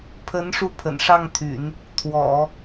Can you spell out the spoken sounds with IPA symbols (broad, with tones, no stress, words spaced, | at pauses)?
pʰə˧˥n ʂu˥˩pʰə̰˨˩nʂɑ˥˩ŋt̪ʰy̰˨˩˦n | t̪ʰwɔ̰˨˩˦